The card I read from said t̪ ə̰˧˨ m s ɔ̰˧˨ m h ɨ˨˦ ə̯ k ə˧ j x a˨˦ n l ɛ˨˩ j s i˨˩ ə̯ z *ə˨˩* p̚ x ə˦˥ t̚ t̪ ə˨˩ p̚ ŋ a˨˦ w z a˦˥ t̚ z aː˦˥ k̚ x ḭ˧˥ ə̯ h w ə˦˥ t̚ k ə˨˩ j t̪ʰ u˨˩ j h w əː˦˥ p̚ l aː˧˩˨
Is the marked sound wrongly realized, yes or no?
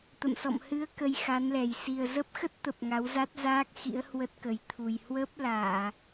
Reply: yes